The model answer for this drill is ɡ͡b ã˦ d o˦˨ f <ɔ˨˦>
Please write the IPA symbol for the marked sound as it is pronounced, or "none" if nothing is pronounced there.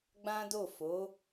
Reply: o˨˦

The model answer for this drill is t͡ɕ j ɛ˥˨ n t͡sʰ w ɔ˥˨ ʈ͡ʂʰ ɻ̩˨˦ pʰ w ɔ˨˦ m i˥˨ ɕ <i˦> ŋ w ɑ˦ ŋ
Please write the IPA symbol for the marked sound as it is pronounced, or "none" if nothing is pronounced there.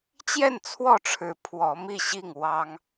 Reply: i˥˨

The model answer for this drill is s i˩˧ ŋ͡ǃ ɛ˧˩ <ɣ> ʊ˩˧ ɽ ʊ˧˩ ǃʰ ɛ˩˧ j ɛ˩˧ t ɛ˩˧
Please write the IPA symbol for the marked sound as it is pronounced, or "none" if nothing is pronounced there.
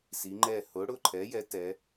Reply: h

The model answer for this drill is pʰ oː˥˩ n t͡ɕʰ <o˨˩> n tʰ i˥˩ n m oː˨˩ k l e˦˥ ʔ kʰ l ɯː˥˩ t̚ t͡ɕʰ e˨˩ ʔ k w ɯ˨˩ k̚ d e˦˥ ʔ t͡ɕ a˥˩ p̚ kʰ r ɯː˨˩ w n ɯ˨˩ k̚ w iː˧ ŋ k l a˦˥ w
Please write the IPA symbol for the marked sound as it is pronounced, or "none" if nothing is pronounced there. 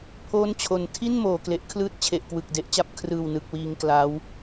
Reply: o˨˩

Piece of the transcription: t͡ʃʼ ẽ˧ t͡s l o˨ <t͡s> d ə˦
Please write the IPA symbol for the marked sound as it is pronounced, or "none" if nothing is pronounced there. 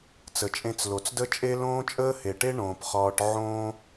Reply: t͡s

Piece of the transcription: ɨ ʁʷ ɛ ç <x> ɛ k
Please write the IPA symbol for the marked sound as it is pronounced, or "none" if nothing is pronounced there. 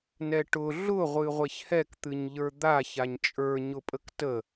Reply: h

